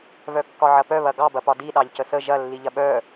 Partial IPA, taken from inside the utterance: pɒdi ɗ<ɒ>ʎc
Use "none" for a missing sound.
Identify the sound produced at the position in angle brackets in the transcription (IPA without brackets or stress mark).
ɑ